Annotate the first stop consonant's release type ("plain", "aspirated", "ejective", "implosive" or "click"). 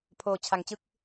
aspirated